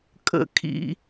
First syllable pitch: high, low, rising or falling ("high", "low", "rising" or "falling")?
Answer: high